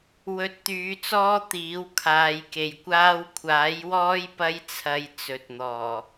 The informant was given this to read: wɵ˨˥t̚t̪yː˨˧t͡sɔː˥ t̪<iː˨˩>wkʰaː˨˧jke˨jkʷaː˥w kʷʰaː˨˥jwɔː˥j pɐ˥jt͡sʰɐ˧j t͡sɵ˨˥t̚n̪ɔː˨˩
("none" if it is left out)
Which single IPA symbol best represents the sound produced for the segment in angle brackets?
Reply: iː˨˥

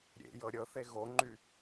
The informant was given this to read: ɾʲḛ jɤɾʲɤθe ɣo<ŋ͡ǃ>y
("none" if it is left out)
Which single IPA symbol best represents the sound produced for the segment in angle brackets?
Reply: ŋ͡ǃ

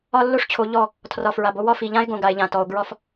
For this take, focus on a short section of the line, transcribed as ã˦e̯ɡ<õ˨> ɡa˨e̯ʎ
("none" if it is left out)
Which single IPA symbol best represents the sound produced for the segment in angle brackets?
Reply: õ˨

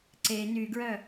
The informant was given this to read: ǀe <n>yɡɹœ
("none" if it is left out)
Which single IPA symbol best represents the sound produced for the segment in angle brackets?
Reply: n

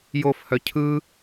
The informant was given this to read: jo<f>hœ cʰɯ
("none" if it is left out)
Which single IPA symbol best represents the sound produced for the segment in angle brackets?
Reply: f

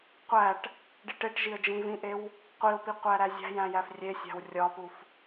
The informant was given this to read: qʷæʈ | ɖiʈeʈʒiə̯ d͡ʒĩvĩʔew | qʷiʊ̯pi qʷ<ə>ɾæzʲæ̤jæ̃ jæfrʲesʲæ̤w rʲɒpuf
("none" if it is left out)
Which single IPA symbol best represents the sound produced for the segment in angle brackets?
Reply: æ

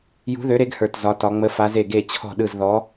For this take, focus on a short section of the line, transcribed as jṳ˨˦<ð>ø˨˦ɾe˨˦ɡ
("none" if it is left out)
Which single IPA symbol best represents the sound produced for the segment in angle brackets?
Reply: ð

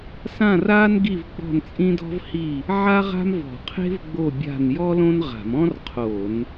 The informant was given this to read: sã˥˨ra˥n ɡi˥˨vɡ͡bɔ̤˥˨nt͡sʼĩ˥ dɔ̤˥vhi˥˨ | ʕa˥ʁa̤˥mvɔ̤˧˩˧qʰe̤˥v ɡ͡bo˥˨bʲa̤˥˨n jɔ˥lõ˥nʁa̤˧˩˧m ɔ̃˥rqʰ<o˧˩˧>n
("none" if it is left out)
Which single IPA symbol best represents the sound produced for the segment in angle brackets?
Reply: o˧˩˧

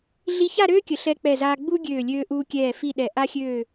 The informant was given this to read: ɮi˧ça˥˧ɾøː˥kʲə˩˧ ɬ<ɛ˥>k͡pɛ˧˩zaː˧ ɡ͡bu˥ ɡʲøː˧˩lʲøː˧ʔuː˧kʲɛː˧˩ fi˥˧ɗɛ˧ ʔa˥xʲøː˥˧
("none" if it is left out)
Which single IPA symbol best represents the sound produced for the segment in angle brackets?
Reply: ɛ˧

